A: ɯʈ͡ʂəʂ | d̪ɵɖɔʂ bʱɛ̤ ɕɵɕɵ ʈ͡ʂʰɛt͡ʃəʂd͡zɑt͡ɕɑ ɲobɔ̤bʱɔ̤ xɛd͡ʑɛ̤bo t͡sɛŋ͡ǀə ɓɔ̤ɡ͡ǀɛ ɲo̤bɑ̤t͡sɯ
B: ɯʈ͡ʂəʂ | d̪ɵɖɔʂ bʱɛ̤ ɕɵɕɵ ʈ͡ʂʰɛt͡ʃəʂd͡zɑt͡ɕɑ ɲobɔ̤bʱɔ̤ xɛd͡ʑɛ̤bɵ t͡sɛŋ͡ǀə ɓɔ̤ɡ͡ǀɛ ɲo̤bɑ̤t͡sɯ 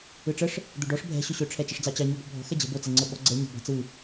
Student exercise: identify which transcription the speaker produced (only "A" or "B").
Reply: A